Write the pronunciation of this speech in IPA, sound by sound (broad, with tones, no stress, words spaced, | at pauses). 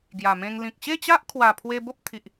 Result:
ɡja˨˩mẽ˧ŋ lĩ˨k̚ɕe˥˧ t͡ɕa˦ʔkʰwa˨˩ pʰwe˧ bo˦p̚t̪ʰi˨ʔ